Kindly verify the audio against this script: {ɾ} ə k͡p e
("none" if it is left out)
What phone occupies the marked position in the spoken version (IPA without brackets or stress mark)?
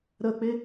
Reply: ɾ